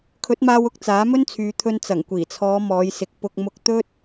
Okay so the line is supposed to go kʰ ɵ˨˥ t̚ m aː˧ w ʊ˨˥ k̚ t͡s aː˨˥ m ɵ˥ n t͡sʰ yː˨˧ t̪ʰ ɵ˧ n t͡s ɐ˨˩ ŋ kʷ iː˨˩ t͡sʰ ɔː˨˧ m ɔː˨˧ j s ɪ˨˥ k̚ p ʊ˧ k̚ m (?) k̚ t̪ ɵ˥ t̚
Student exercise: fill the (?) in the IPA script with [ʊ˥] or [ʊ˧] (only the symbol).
ʊ˧